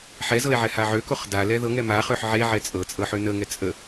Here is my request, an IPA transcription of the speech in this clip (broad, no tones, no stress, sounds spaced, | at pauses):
ħ ɛ z ɤ e̯ ʕ ɛ h a ʕ ø k o χ d a l ɛ ð ɤ ŋ ɛ m a χ ø ħ ʕ e ʕ ɛ t͡sʼ ɤ t͡sʼ ɤ ħ ø n ə ŋ ɛ t͡sʼ ə